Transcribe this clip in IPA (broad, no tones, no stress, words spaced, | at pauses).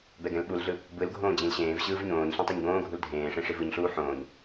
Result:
bɛɡɛ̃lɓulɮɯ | bɯlɡʱõː d͡ʑĩlɕẽːvɕɯːv ɲõːɲɬẽ tˤeɲɡõːɡʱul dʱẽːʂẽ ʂivɯɲɬuː ħõːɲ